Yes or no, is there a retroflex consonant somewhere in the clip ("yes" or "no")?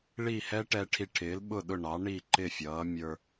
yes